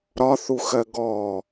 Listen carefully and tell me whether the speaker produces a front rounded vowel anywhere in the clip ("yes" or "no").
no